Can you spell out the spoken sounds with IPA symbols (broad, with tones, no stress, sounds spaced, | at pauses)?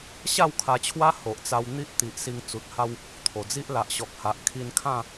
ɕ a˥˧ w kʰ a˧ t͡ɕʰ w a˦ h o˨ ʔ t͡s a˧ w n̪ i˦ ʔ t̪ i˨ ʔ s i˧ ŋ t͡s u˨ t̚ h a˦ w | t̪ʰ o˨˩ d͡z i˦ ʔ l a˨ ʔ ɕ ɔ˨ k̚ h a˨ ʔ kʰ i˧ n kʰ ã˥˧